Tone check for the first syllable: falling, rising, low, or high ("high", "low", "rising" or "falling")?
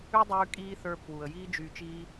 high